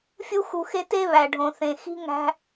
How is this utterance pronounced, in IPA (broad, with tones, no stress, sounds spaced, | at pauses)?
fʲ u˦ x u˨ x e˦ t e˥ β æ˩ ɖʱ õ˩ θ ẽ˩ x i̤˦ ŋ æ̤˥